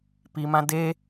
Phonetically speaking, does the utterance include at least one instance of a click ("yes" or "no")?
no